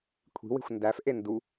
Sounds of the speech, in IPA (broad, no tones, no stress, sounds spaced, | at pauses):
kʷʰ i̤ w e̤ xʷ n d æ f ʔ e n d u